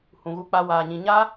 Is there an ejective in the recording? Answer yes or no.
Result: no